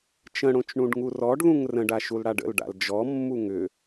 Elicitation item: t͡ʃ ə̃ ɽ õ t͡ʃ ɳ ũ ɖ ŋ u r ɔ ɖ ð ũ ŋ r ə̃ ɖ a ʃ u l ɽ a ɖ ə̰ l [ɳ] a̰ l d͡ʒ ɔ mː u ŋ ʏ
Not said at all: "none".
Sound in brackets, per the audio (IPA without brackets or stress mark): ɖ